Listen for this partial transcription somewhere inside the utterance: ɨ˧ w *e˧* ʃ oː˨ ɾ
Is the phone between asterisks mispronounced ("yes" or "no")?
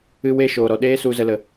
no